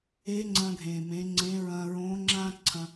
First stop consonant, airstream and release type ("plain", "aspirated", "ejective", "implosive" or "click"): click